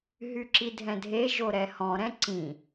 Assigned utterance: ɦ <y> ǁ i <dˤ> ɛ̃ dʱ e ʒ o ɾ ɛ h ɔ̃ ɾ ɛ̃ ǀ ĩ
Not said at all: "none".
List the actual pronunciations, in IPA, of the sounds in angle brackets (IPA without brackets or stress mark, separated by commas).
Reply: y, dʱ